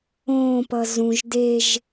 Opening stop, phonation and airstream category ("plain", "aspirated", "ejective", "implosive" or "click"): plain